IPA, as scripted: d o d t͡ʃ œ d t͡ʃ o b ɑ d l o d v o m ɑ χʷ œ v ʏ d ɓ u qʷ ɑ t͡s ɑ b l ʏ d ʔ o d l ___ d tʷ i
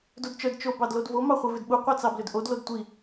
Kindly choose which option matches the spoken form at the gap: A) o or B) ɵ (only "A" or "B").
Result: A